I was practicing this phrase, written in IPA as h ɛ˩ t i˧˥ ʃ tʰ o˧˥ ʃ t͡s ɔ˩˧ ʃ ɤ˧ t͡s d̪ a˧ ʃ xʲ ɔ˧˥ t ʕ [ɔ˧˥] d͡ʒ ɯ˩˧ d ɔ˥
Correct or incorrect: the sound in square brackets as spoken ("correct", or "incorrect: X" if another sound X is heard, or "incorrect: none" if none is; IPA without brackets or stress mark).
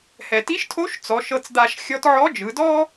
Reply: correct